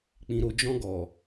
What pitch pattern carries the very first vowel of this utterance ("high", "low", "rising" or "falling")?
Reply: low